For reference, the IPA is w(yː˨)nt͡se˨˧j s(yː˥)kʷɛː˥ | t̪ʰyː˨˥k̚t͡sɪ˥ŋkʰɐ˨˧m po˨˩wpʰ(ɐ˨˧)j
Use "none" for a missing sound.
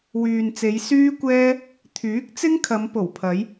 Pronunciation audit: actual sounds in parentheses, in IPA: yː˨, yː˥, ɐ˨˧

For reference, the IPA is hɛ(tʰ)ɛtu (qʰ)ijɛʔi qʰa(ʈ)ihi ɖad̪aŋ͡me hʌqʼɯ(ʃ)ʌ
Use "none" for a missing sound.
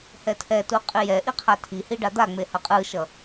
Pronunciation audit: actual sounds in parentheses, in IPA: tʰ, qʼ, tʰ, ʃ

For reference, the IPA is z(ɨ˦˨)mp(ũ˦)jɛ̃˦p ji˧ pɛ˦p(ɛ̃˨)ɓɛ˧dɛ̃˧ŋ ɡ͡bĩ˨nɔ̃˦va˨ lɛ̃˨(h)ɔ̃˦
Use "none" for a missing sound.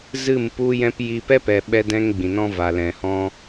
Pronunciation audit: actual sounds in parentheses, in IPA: ɨ˦˨, u˦, ɛ˨, h

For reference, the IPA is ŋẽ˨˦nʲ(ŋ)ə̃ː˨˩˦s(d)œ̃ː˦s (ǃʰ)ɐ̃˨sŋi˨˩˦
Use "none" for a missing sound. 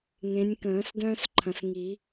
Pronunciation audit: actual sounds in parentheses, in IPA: k, d, ǃʰ

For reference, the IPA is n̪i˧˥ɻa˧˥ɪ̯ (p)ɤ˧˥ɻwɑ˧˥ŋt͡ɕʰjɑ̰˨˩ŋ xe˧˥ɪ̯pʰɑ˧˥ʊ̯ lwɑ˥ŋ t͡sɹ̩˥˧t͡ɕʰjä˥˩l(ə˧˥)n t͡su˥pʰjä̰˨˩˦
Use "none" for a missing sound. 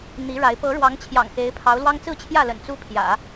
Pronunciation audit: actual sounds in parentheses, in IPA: p, ə̰˨˩

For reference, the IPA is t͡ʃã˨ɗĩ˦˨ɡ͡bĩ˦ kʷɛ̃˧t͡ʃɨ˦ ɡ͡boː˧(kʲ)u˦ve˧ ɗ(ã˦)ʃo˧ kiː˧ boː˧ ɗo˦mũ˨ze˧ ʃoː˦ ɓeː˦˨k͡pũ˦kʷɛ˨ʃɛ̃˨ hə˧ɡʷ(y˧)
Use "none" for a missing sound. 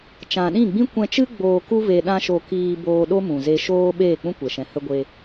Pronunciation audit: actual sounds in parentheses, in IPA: k, ã˦, e˧

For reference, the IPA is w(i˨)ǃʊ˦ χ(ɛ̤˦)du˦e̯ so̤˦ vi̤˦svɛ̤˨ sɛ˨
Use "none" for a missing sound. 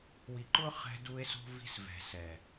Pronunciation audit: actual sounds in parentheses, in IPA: i˨, ɛ̤˦

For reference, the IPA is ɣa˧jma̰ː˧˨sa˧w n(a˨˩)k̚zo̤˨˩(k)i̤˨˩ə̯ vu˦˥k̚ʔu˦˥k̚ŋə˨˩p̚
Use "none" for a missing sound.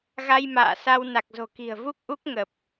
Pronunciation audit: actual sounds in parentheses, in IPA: a˨˩, k

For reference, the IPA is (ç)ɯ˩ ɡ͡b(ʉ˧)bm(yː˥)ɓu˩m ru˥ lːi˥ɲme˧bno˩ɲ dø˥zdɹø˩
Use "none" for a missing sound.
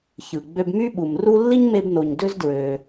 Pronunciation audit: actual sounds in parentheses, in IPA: ç, ø˧, y˥

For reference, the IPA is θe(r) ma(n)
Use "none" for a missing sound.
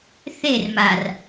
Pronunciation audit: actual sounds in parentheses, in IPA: r, r

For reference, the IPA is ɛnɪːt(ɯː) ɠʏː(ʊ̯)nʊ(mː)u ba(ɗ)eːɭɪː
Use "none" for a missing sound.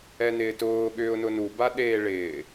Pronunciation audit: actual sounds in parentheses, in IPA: ʊː, ʊ̯, n, ɗ

